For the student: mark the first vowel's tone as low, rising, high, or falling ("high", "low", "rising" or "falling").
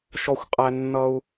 high